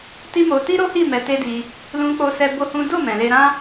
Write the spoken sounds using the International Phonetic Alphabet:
t i˦ m o˧ t i˦ ɾ o˦ h i˦˨ m ɛ˧ t e˦ d i˧ | l ũ˧ k͡p o˧ s ɛ˧ b o˦ h ũ˦ d o˦˨ m ɛ̃˨ l e˧ ɾ ã˦

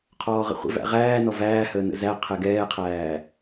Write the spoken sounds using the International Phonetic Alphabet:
qʰ ɔː ʁ ə̰ χʷ ə̰ v æ̰ ʁ æː n ɔ v æː h əː n ə̰ z æ qʰ ɛ ɡ ɛː qʰ æː

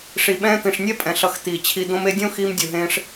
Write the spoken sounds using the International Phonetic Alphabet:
ʂ i˨ ɓ ɛ̃ː˧ t̪ ĩ˨ ʂ nʲ ɛ˦ pʼ ɛ̃˨ ɬ ʌ˨˦ x t̪ iː˨ t͡ɕʰ i˧ d̪ õ˧ m e˧ dʲ õ˦ x iː˧ m dʲ u˨ ɦ ẽː˧ ʂ

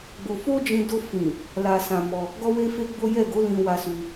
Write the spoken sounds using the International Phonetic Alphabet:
ɡ͡b o˧ f o˦ d͡ʒ ĩ˧ d o˧ f ĩ˨ | l a˧ s ã˧ m ɔ˧ | ɡ ɔ˦ w e˦ f e˦ ɡ͡b o˦ j ɛ˦˨ ɡ o˨˦ l ĩ˧ w a˧ s u˧

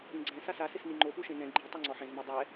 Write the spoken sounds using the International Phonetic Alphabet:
ĩ ɡ͡ǀ ɛ̃ s a s a s ɪ s n i ŋ͡ǃ o p u ʃ ẽ n ɛ̃ ɡ͡ǃ i tˤ a ŋ͡ǀ ɔ ħ ẽ z m i dˤ ɛ

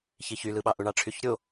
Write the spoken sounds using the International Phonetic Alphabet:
ç i ç y l ɯ ɓ ɑ ʔ u ɳ ɑ ʈ͡ʂʰ y ç ɾʲ o

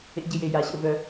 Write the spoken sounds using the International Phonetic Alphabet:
ḛ˥ ɟ ɪ˦ j e˦ j a˦ ɕ ə̰˥ v œ˦

